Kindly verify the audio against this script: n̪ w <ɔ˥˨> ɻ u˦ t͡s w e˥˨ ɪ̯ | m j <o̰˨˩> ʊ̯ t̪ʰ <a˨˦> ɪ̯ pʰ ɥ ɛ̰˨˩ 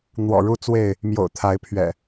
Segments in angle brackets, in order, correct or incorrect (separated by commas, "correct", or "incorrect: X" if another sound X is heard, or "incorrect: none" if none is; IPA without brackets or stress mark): incorrect: ɔ̰˨˩, correct, correct